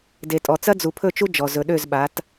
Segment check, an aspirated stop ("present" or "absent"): present